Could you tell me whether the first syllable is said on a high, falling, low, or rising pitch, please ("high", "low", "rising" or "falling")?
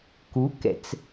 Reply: rising